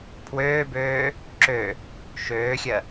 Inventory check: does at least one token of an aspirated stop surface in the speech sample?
yes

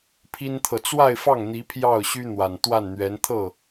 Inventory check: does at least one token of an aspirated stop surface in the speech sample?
yes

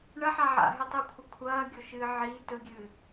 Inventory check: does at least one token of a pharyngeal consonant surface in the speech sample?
yes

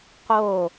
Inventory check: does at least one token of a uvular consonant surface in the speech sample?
yes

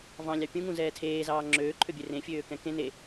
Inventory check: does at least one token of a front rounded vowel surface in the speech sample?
yes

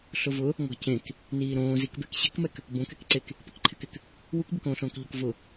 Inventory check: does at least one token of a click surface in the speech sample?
yes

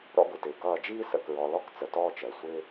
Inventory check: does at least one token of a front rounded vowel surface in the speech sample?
no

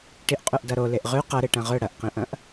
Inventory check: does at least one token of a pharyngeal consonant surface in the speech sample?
no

